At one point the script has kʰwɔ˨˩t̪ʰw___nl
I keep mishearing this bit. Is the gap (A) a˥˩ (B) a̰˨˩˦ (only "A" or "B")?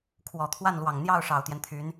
A